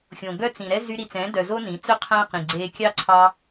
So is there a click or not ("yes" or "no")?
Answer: yes